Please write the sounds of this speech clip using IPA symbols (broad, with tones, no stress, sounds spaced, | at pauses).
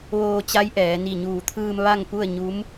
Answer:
ʋ oː˧ t͡ɕ a˧˥ j ʔ ɛː˩˧ n i˧˩ ɲ uː˧˩ t̪ʰ ɯː˧ m ʋ a˥˨ ŋ p u˥˨ ə̯ ɲ u˧˥ m